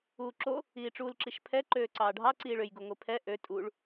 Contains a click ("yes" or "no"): yes